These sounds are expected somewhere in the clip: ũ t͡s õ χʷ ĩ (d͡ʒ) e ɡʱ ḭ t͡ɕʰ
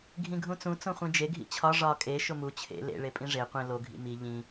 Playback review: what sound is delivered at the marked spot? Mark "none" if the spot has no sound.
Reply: d͡ʒ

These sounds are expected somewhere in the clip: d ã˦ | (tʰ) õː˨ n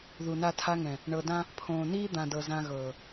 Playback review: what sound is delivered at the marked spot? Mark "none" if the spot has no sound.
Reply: pʰ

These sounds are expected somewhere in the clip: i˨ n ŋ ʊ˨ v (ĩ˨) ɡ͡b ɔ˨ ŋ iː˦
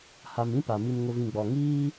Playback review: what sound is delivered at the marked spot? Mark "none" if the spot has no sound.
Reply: ĩ˨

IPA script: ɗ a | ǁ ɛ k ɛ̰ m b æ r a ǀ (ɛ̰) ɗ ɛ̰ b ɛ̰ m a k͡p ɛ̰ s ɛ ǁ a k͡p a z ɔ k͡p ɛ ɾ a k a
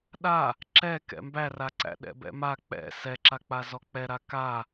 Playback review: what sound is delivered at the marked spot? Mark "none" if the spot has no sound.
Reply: æ̰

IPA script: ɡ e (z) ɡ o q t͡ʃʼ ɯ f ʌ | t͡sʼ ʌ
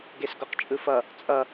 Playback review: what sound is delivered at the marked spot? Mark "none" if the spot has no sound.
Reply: s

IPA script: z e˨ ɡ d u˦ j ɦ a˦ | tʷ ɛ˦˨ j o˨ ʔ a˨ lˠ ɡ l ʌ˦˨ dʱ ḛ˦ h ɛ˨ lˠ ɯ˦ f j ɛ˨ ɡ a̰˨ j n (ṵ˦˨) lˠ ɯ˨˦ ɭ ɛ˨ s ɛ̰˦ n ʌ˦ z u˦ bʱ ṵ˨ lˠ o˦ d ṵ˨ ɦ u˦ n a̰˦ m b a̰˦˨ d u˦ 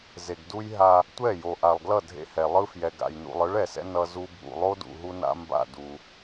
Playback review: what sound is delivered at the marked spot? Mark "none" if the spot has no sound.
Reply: ṵ˨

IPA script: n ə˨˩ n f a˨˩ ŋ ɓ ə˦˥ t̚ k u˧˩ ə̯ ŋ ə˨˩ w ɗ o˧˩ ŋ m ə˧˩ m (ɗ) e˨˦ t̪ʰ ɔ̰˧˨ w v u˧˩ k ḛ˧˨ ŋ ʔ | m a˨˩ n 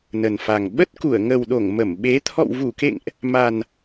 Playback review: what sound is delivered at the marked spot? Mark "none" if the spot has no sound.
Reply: ɓ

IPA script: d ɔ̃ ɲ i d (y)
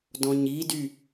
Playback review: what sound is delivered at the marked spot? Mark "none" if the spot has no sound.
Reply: y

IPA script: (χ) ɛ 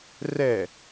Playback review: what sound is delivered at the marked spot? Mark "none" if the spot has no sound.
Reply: r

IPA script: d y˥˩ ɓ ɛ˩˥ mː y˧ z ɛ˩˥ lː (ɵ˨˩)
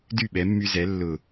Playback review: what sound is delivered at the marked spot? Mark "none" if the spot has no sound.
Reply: ʊ˨˩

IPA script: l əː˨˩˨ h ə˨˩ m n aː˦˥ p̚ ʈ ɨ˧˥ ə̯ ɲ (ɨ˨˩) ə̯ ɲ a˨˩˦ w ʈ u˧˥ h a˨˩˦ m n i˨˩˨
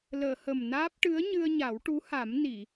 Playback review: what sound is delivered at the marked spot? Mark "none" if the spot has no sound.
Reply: ɨ˧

